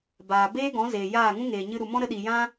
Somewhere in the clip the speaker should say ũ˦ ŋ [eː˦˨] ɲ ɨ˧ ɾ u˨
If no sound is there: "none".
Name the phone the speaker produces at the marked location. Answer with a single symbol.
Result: eː˨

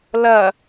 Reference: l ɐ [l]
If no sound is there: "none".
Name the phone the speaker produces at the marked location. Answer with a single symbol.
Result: none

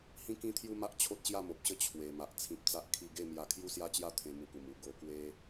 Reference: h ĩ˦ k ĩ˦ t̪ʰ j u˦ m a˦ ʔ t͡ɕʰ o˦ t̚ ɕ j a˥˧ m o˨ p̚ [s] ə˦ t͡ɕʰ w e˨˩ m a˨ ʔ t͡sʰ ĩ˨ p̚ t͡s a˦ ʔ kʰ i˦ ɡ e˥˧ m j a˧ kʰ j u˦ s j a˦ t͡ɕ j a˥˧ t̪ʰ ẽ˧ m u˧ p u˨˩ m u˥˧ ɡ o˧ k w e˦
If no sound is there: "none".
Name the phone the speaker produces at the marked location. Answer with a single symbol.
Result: ɕ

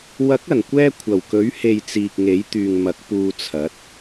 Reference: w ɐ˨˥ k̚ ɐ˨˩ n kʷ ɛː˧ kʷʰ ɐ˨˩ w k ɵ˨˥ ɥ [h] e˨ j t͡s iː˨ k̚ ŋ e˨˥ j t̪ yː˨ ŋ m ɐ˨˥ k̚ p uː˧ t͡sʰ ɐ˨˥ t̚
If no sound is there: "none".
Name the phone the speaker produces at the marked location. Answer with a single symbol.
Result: h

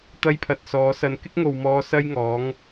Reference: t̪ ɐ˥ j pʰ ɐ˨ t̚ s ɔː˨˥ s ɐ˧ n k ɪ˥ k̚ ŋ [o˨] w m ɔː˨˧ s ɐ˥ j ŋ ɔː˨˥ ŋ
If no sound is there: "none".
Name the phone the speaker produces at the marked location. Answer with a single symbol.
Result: o˨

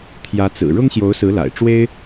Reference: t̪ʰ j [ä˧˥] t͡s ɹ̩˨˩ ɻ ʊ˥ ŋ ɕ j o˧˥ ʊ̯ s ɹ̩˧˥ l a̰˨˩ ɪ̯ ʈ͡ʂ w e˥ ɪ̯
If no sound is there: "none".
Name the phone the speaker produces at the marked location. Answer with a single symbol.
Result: ä˧˥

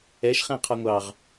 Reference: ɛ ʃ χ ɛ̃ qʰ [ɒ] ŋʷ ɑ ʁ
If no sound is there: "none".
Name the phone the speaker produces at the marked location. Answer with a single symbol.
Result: ɒ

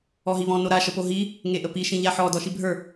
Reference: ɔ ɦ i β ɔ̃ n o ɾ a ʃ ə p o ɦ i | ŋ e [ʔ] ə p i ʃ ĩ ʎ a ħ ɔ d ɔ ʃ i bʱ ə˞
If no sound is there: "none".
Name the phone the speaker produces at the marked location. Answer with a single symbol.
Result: ʔ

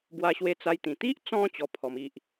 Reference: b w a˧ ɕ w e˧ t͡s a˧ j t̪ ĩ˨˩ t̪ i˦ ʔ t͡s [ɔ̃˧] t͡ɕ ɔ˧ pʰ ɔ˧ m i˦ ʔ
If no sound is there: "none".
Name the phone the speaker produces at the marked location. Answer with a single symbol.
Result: ɔ̃˧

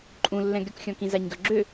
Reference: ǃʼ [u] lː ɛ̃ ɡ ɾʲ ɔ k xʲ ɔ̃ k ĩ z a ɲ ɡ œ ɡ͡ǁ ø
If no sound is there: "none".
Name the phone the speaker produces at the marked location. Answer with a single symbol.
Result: ũ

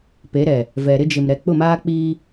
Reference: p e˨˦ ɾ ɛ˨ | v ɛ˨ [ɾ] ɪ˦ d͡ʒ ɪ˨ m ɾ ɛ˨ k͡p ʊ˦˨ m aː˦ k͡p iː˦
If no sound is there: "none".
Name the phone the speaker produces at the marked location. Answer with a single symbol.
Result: ɾ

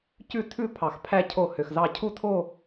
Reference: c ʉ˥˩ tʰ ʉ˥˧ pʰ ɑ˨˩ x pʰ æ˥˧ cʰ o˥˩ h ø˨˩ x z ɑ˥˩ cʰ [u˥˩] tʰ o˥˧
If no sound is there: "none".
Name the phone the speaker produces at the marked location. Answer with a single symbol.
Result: u˥˩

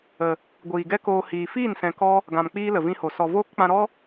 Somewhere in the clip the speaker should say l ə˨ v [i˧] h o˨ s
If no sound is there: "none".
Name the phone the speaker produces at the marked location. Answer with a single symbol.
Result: ĩ˧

